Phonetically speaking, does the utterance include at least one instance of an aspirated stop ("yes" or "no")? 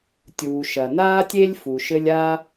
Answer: no